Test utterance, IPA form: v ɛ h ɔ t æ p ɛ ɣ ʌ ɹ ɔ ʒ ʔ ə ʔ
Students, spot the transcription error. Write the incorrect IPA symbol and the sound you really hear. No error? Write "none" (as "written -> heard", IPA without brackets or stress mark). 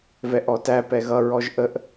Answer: h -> ʔ